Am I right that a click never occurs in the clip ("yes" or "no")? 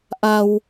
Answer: yes